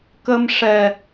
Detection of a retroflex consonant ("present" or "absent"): present